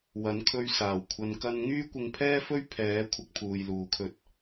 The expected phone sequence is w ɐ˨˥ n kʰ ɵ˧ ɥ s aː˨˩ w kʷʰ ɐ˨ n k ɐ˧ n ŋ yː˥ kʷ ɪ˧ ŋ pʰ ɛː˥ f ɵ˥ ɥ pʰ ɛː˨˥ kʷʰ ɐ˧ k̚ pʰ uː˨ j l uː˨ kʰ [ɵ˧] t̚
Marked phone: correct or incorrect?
correct